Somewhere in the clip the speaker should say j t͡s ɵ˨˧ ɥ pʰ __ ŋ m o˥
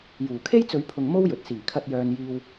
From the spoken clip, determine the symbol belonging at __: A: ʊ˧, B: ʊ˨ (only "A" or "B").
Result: B